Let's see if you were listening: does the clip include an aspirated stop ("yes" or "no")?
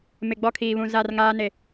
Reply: yes